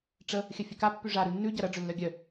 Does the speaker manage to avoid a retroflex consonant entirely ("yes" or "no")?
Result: no